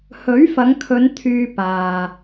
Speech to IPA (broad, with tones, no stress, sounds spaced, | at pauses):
h ɵ˨˥ ɥ f ɐ˨˧ ŋ kʰ ɵ˨˧ n t̪ʰ yː˧ p aː˨